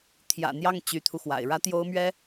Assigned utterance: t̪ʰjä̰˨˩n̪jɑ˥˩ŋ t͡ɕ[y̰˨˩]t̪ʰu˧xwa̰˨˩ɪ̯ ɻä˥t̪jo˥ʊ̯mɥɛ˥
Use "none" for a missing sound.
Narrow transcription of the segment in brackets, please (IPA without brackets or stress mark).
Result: y˧˥